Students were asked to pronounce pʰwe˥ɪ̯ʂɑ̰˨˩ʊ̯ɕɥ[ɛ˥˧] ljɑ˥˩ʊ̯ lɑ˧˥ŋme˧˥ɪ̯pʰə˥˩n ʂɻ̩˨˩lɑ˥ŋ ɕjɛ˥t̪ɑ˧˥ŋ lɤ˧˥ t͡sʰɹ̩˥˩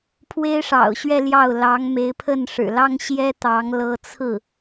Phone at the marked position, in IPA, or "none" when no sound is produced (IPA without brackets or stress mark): ɛ˥˧